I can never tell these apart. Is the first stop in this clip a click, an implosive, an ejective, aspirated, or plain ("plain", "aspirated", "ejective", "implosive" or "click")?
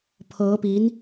aspirated